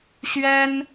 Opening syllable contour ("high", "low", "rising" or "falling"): high